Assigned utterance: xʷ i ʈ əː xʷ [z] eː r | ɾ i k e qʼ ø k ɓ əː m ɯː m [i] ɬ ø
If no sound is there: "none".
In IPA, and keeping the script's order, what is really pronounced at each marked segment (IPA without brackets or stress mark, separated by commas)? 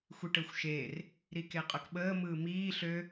ʃ, iː